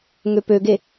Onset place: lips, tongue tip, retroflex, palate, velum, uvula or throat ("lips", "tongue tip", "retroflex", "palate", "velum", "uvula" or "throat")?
velum